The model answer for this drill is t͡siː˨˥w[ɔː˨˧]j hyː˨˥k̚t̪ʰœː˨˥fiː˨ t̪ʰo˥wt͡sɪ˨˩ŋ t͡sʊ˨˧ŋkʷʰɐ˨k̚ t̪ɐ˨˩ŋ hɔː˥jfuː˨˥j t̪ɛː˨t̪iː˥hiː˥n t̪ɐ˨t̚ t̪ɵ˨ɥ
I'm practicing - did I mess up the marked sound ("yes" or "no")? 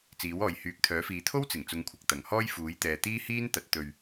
yes